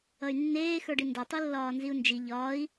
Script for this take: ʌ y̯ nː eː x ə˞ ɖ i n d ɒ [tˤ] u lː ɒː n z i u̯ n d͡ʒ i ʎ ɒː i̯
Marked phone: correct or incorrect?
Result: correct